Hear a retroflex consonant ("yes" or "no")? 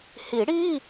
yes